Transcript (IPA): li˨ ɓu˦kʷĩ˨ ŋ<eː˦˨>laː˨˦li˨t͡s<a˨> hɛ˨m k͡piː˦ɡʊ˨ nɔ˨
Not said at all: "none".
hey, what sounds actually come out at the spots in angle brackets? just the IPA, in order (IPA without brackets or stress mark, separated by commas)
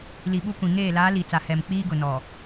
eː˦˨, a˨